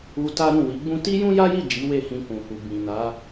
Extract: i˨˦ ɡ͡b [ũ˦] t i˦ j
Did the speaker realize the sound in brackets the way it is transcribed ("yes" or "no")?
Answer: yes